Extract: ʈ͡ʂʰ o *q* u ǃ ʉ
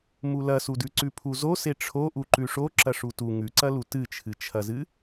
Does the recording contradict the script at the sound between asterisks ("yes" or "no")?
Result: yes